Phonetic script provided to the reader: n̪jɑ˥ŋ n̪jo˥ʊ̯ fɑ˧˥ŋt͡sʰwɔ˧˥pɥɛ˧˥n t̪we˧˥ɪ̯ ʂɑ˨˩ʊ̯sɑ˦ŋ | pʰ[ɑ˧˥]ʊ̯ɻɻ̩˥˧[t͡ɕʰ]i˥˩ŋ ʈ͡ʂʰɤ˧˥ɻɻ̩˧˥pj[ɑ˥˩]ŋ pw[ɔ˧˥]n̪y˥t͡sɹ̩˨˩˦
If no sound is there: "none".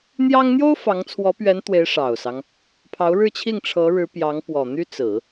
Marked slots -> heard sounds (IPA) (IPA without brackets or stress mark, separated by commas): ɑ˧˥, t͡ɕʰ, ɑ˧˥, ɔ˨˩